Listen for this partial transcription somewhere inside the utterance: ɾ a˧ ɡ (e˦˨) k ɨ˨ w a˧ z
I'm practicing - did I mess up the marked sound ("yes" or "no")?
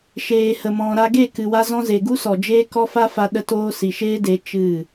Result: no